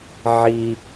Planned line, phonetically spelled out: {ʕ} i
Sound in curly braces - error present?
no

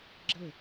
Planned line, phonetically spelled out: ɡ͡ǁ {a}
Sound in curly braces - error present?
yes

